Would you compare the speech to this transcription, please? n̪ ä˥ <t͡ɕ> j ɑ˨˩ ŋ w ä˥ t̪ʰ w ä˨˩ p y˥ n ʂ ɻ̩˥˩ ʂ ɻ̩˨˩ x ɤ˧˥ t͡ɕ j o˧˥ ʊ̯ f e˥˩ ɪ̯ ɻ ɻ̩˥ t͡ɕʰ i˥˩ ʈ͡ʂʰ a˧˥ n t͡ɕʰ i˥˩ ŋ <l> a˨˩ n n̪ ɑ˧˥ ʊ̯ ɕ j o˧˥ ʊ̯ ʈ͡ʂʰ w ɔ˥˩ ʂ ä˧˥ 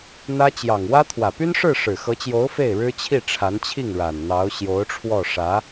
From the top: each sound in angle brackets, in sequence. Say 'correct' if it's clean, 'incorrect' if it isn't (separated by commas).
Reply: correct, incorrect